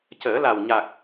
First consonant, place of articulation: palatal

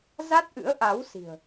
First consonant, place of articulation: alveolar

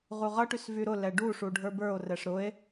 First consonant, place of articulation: uvular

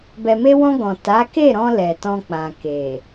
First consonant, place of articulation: labial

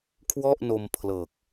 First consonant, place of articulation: velar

